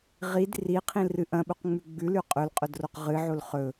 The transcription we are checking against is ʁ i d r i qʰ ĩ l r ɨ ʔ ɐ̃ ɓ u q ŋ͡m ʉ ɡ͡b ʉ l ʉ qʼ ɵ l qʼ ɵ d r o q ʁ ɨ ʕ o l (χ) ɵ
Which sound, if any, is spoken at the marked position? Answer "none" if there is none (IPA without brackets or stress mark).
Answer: χ